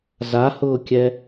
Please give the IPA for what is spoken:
z a h ʊː kʲ ɛ

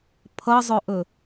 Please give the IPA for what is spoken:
pʰ ʌ zˤ ɵ ʔ ɵ

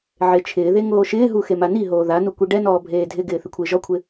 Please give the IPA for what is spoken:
ʕ e t͡ʃʰ ɪː ð e ŋ oː ʃ ɪː ɦ u x e m a n i ɦ oː ð a n u kʷ i ɖ ɛ n ɔː bʱ eː dʱ ɪ ɡ ɪː θ ɪ kʷʰ ɪː ʒ ɔ kʷʰ ɪ

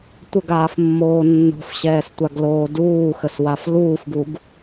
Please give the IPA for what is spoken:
tʷ ə ɡ aː f mː oː nː o̤ f ɕ ɛː s tʷ a ɡ l oː d uː x ə s w a f l uː f ɡ u ɡ

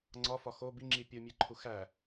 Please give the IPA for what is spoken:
ŋ͡ǀ ɒ f ɒ x o b i ŋ͡ǁ i pʲ u mʲ e ǃʰ u x æ

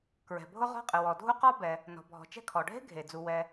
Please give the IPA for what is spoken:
k ɹ ɛ̤˩ bʱ ʊ˥ ʁ ɔ̤˥ qʼ ɨ˩ w ɔ˩ dʱ u˥ q ɔ˥ b ɛ˩ | n ɔ̤˩ bʱ ɔ̤˩ t͡ʃ ɛ̤˥ kʰ ɔ˩ ɖʱ e̤˥ ɡʱ e˩ d͡z u˩ w ɛ˩

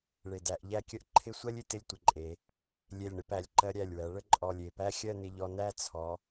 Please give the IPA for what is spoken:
ɭ e˧˩ d æ˧ ʔ ʎ æ˥˧ kʲ ə˥ ʔ ǃʰ ɪ˥˧ sʷ ɜ˥ lʲ ɪ˧ t ɪ˥˧ lʲ tʷ ɪ˩˧ ǃʼ e˩˧ | lʲ e˧˩ lʲ ɳ ɪ˩˧ p æ˩˧ lʲ ǃ ɜ˧ ɾʲ æ˧˩ lʲ w æ˩˧ ɭ ə˥˧ ǃʼ ɔ˧˩ lʲ e˧˩ p æ˥ xʲ ɜ˥˧ n ɪ˧ ʎ ɔ˧ n æ˥˧ t͡sʰ ɔ˩˧

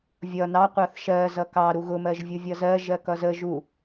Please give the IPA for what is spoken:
vʲ ʌ n ɑ qʷ ɑ θ ʃ ɜ z ʌ k ɑ ɾ u ɣ ʊ m ɜ ʒ vʲ u vʲ ʌ z ɜ ʒ ɜ k ʌ z ə ʒ u

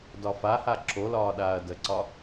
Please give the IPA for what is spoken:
d ɒ f a h a ǁ o l ɒː ɗ aː ɐ̯ d ə ǀ ɒ

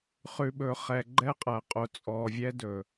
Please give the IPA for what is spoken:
χ ʉ˨ ɓ ɵ˨ χ ɛ˨ ɡ͡ǃ ɛ˦ qʼ æ˨ qʼ o˨ t͡sʼ ɔ˨ vʲ ɛ˦ d ɵ˨

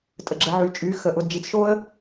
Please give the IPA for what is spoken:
tʼ ə˩ ɡ͡ǁ ə˩˧ ʕ y˩˧ t͡ʃʼ y˩˧ x ə˩˧ ʔ ʊ˩˧ d d͡ʒ i˩˧ t͡s ʃ o˥ ə̯

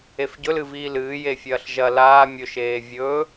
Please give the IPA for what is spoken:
e f ɟ ɵ l ɨ v iː l ɨː j e fʲ ɐː ɬ ʒ ɐ l aː mʲ ɵ ʃ eː vʲ ɵ

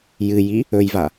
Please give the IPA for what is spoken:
j ɨ j i | ɵ j v a

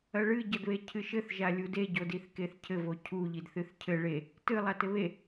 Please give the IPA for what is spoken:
ɐ ɭ ɨ ɟ ɐ d β e cʰ ɨ ʃ ɘ θ ʒ a lʲ u d e ɟ o d i θ k e θ cʰ ɘ v o cʰ u ʎ i d θ ɨ θ cʰ ɘ ɭ e | t ɨ lˠ a t ɘ β e

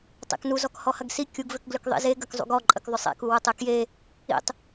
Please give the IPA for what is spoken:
tˤ ḛ k n u z ɔ k h ɔ h ɐ ɡ s i kʲ u ɡ v ʏ k ɡ l ʏ k ðˤ ḭ z e ɡ ɐ k zˤ ṵ ɡ ɔ ǃʼ ə k ðˤ ʏ sˤ ḛ k u w ʊ tˤ e k j e | ḭ tˤ

